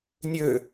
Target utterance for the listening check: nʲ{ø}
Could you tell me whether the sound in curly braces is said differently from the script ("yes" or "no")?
no